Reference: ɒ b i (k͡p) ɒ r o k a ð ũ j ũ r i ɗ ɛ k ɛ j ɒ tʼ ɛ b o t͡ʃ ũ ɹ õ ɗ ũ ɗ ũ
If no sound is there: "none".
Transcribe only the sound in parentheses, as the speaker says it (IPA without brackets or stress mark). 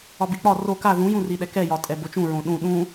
k͡p